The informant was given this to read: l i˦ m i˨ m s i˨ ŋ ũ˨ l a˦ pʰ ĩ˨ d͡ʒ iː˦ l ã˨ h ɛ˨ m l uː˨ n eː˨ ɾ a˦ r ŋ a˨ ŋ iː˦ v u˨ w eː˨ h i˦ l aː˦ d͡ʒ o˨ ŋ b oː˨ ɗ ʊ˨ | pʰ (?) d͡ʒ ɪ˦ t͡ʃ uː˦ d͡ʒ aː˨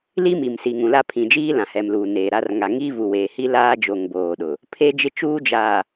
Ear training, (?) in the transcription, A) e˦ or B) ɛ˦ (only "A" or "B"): A